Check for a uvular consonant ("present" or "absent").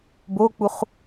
present